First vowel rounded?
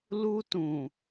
yes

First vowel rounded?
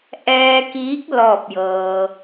no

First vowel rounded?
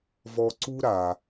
yes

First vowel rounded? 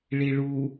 no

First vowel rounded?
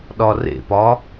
yes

